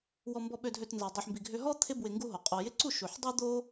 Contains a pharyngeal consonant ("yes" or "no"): yes